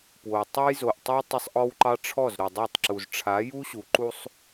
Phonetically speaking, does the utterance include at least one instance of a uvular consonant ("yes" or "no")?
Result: no